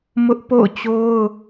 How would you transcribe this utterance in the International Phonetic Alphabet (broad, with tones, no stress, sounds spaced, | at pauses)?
m ʊ˦ ʔ p o̰˦˨ ʊ̯ t͡ɕ o˦ ʊ̯